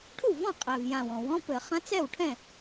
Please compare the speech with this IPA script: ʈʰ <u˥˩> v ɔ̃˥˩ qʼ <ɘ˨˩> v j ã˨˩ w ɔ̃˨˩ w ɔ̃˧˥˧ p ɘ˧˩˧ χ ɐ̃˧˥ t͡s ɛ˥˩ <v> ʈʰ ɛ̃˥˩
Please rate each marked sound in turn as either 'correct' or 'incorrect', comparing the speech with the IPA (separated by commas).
correct, incorrect, incorrect